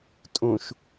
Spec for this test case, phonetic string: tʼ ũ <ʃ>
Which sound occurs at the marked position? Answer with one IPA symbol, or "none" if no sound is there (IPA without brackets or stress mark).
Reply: ʃ